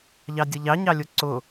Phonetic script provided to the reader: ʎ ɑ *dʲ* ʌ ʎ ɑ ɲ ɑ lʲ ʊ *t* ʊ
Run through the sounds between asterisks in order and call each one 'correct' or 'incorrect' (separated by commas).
correct, incorrect